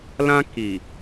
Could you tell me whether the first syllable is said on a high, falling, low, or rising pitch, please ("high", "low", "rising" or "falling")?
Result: high